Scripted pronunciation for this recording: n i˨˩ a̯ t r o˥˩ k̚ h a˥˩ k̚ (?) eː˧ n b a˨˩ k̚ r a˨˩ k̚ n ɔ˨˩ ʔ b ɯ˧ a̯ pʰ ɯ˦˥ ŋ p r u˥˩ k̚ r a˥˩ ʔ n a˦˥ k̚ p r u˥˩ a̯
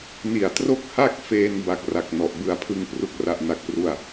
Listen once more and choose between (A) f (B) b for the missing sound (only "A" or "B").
A